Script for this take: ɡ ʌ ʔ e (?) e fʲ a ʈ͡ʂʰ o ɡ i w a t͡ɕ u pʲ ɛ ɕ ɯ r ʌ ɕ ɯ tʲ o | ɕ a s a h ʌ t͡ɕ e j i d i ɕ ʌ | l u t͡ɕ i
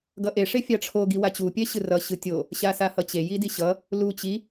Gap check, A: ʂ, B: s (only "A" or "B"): A